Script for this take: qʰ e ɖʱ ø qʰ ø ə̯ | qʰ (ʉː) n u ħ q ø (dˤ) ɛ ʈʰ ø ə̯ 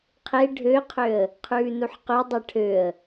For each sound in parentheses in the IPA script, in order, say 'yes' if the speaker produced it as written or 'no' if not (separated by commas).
yes, yes